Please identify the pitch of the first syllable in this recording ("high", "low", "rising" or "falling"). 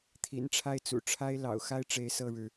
low